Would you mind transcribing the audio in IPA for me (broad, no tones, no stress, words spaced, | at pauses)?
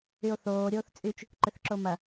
yo̯θoː ɾʲoːθt͡sʼyt͡ʃ | ǃʏθǁomɐ